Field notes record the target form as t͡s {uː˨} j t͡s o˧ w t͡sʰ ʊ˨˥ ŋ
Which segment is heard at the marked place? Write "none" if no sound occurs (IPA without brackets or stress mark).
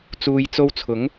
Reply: uː˨